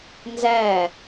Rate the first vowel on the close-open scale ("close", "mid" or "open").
open